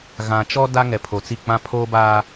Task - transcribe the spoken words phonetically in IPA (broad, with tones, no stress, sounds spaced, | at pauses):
ɣ ã˨ t͡ʃ ɔ˦ d a˦ ŋ ɛ˨ pʰ o˨ t͡s i˦˨ k͡p ã˦ pʰ oː˦ b aː˦